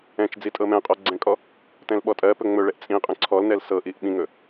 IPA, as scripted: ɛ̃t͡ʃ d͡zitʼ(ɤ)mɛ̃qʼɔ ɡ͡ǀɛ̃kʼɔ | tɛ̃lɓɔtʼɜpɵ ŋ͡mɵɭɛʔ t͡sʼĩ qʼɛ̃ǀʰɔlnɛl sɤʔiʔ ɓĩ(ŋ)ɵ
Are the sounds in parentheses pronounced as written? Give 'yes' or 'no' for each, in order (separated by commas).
yes, yes